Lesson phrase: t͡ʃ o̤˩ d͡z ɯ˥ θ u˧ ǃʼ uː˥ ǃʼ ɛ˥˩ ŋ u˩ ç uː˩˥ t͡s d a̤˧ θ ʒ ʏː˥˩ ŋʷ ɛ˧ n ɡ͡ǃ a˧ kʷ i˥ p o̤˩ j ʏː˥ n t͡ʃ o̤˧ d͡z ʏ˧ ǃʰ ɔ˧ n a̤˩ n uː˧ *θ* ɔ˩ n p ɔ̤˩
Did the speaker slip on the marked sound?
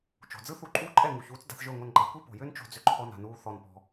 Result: no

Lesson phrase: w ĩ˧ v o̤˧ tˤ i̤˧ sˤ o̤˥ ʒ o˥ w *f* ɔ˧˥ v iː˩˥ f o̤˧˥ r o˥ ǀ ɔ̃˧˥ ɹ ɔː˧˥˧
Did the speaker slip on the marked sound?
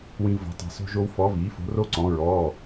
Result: no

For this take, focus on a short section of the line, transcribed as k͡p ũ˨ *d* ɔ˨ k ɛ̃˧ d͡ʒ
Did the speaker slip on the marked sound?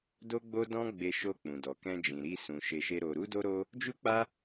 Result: no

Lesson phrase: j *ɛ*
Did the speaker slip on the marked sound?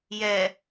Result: no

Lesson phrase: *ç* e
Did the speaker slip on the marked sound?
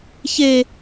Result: no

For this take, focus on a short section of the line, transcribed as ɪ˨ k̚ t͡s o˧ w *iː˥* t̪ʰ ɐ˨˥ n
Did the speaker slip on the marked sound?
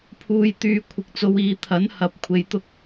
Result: yes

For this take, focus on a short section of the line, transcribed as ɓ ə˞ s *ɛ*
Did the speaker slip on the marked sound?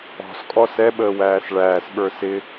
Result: yes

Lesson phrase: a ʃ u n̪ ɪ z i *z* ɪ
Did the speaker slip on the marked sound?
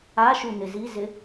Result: no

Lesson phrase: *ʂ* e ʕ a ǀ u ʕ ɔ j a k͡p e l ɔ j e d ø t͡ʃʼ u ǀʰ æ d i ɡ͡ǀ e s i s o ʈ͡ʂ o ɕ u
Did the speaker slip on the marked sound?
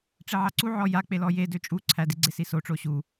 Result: yes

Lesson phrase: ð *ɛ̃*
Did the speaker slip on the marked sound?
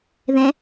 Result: no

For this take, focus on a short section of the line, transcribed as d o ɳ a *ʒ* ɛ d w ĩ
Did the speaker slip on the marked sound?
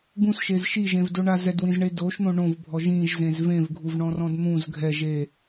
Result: yes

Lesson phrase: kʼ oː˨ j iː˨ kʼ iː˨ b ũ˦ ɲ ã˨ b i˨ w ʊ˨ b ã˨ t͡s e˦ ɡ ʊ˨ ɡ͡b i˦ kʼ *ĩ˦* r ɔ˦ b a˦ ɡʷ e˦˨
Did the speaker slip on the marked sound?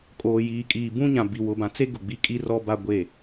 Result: yes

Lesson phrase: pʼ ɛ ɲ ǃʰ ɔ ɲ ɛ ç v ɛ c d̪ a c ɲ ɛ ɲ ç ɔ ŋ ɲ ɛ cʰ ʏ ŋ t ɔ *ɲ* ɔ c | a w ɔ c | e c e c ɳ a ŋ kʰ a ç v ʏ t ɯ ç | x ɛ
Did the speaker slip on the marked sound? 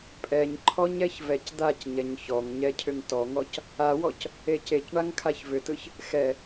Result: yes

